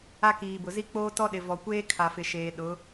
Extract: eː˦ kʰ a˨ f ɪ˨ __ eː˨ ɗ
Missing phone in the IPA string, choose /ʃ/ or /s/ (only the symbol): ʃ